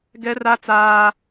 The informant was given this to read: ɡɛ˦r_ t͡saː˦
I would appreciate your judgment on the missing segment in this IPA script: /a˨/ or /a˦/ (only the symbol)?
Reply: a˦